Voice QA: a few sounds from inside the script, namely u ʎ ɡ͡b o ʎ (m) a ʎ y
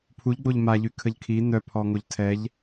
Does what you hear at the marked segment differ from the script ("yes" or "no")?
no